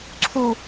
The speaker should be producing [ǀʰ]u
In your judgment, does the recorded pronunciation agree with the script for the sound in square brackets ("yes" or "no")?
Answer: yes